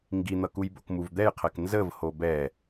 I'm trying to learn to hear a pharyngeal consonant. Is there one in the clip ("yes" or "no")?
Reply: no